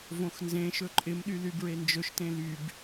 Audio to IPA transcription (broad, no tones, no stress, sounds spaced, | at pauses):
v õ x n z ẽ ʃ ɵ ǃʼ ɪ m ɗ y l y b ɹ e n d͡ʒ ɵ ʃ t ẽ l y b